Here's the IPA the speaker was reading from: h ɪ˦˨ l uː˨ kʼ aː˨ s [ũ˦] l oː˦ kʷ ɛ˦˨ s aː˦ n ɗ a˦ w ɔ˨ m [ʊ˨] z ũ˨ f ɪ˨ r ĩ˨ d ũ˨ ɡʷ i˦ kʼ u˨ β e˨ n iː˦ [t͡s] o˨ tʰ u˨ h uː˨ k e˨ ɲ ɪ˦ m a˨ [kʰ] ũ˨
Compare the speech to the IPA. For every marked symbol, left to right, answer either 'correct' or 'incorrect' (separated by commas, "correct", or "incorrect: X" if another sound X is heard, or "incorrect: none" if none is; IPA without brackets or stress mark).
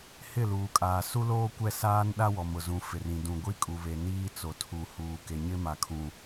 incorrect: u˦, correct, correct, correct